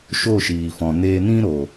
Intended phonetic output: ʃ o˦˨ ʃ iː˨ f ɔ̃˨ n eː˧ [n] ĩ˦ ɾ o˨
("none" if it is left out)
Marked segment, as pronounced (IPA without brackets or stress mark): n